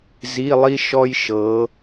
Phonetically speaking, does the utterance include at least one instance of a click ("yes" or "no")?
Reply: no